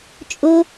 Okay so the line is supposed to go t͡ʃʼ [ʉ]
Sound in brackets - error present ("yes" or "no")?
yes